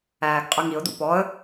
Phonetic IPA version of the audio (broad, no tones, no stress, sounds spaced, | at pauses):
æː ɡ qʼ ɯ ŋ i ʊ̯ d ṵ p ɔ ə̯